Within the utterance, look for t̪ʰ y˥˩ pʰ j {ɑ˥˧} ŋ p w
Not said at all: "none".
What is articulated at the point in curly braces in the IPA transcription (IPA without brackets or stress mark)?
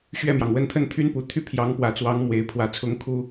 ɑ˧˥